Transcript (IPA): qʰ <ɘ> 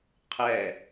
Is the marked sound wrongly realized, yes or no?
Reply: yes